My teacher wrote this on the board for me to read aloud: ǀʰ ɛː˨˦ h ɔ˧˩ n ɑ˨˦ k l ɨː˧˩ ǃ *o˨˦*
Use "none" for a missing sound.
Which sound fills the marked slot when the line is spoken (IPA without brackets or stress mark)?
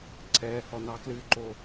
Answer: o˧˩